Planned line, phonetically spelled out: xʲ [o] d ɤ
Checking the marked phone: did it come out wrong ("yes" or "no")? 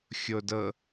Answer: no